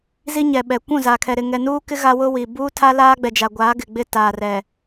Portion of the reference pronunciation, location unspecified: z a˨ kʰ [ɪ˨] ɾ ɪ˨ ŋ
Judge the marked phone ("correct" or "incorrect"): incorrect